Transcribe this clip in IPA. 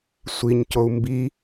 sʷ i ɲ c o u̯ m b i

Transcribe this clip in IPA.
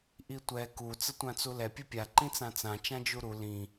ʔ i tʷ ɛ k u t͡s ə tʷ ã t͡s u l ɛ pʲ u pʲ a ǃ ĩ t͡s ã t͡s ã t͡ʃ ã d͡ʒ u ɾ u l ĩ

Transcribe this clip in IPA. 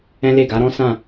ɛ̃˦ l e˦˨ ɡ a˨˦ ɾ ɔ̃˦ s ã˦˨

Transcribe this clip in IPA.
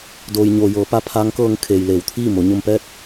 d oː˩ j ɲ oː˩ j ɤː˩˧ p a˧ pʰ aː˧˥ ŋ k ɤː˧ ŋ kʰ eː˩ j l eː˩˧ w t̪ʰ iː˥˨ m o˩˧ ɲ o˧ m p ɛː˥˨ t̚

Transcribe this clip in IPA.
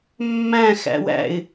mː æ̃ x æ̰ w æ̰ ɪ̯

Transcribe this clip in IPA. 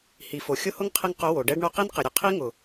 h i˨ f o˨ xʲ ʊ˦ h ʊ˦ ŋ qʰ ɪ˧ ŋ q ʊ˨˦ w o˨ ɖ ɛ˦ ɖ ɳ o˧ q i˦ n q ɪ˨ ɾʲ ʊ˨ qʰ i˦ ŋ ʊ˨

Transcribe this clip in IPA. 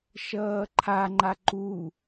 ʃ ʌː ǃʰ a ŋ͡ǃ a ǃ u

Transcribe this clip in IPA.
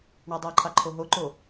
ɳ ɑ dˤ ɑ ǃʰ ɑ ǃʰ o ɦ o ǃ o

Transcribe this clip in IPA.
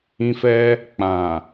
ĩ˧ f ɛ˧ | k͡p ã˨

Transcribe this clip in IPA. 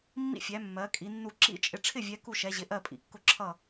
mː ḭ˥˨ fʲ æ˨˦ mː ɜ˨˦ kʼ i˨˦ nː u˥˨ ǁ ḭ˥˨ t͡ʃʼ ɪ˨˦ ʈ͡ʂʰ ɪ˥˨ vʲ ɛ˨˦ k u˥˨ ʃ ɛ˨˦ ʑ ɪ˨˦ ʔ ɜ˥˨ pʼ ḭ˨˦ kː ʊ˥˨ ǁʰ ʌ˥˨

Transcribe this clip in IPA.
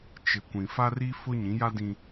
t͡ʃ ɪ˨ kʷ ĩ˨ f a˦ r i˦ f ʊ˦ ɲ ĩ˨˦ j a˦ d ĩ˦

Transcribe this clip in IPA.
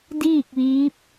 d iː˥˨ k̚ ʋ iː˧˥ p̚

